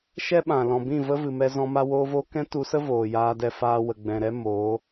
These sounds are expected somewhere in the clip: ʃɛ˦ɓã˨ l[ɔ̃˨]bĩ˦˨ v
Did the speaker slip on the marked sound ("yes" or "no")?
no